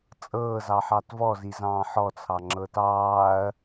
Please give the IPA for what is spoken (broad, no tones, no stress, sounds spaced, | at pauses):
t͡sʼ ɤː z ɑ ħ ɑ t v ɔ z i z ɑ̃ː ħ ɔ t͡sʰ ɑ ŋ͡ǁ ɤ t ɑː ɐ̯